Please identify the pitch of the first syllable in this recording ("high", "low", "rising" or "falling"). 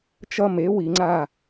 high